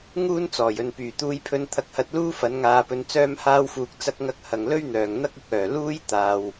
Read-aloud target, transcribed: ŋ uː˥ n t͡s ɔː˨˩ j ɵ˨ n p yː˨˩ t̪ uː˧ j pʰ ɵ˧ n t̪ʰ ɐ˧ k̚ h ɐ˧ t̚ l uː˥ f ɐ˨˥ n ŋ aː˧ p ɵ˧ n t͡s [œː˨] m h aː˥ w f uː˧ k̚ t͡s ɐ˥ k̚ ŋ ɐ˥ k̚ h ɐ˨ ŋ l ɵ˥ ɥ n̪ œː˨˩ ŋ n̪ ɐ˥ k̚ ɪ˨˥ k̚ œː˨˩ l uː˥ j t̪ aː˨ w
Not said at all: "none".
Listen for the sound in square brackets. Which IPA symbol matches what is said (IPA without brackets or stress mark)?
œː˥